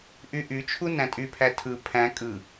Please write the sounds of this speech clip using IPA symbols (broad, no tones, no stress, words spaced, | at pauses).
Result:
ʔyʔyt͡ʃʰu næ̃tʼypʰæ tʰɯ pʰæ̃ kʼɯ